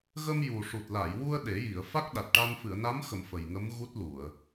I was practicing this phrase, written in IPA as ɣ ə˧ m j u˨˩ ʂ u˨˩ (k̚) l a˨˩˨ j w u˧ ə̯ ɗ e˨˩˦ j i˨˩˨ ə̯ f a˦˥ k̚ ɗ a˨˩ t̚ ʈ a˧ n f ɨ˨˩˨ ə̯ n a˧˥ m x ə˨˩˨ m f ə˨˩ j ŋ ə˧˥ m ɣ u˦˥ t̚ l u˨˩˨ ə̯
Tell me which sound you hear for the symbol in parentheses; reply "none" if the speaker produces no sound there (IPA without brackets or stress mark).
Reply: t̚